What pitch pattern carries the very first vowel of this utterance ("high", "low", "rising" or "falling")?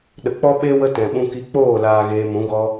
low